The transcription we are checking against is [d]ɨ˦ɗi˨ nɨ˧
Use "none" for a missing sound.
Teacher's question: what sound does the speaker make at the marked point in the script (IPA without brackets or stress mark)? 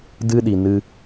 d